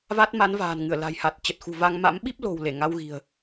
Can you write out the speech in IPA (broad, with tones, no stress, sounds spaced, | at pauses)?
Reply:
v a˦˥ t̚ m a˨˦ n v a̤ː˨˩ n ŋ ɨ˧˩ ə̯ l a̤˨˩ j h a˨˩ t̚ t͡ɕ ə˨˩ t̚ x ṳ˨˩ v a˧ ŋ m a̰˧˥ m ɓ i˦˥ p̚ l o̤˨˩ w l e˧˩ ŋ a˧ w ɣ i̤˨˩ ə̯